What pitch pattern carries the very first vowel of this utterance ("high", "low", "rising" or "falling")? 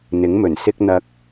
rising